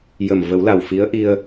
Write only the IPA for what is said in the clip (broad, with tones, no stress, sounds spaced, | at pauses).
j ə˨˩ m v ə˨˩˦ w l a˨˩ w f i˧˥ ə̯ ʔ i˧ ə̯